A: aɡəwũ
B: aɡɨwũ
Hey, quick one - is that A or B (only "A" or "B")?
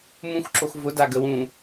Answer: A